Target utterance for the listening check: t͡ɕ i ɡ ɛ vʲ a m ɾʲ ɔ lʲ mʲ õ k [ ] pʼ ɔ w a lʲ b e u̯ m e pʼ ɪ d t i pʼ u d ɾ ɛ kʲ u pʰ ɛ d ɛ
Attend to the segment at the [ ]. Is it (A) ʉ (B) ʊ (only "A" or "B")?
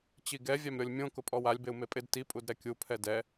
B